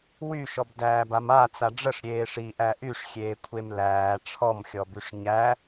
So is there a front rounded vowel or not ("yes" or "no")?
yes